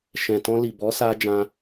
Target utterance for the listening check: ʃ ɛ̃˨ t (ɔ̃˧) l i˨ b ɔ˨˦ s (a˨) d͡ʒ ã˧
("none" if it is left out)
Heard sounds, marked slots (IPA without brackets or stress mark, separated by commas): ɔ̃˧, a˧